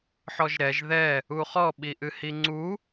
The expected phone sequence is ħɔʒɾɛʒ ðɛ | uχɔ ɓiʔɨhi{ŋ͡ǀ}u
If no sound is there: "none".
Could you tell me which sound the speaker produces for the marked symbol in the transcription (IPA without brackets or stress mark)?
ŋ͡ǀ